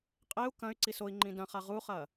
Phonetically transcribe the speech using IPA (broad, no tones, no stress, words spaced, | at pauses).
qʼeu̯ kɐ̃y̯ǀis oi̯ŋ͡ǃĩ dɐ̃χa ʁuχɐ